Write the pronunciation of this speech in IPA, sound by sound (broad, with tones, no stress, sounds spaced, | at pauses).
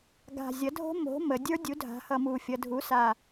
ɡ a̤˨˩ zʲ ʌ˩˥ dʱ o̤˦˥ m o̤˩˥ m ə˩˧ dʲ ə˞˦˥ dʲ u˩˥ dʱ a̤˩˧ h ʌ˨˩ m u˨˩ fʲ ʌ˩˧ dʱ u˩˥ s a˨˩